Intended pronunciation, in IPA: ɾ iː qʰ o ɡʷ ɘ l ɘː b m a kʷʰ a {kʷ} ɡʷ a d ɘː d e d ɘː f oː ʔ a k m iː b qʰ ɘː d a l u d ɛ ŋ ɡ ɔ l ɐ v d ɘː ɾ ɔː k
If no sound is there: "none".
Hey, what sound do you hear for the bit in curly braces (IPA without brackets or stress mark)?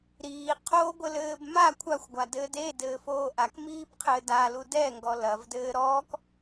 xʷ